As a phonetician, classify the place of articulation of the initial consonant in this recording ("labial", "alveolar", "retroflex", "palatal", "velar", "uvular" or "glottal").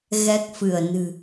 velar